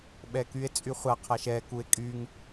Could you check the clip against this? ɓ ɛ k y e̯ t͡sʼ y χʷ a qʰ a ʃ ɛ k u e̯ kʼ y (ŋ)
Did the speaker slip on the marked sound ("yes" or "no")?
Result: no